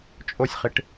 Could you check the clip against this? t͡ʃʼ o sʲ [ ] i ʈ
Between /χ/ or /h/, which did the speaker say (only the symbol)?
χ